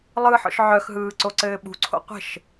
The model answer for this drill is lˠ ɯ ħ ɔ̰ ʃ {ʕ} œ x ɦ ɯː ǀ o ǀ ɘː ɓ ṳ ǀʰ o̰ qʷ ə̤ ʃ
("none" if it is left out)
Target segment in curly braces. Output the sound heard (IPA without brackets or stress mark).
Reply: ʕ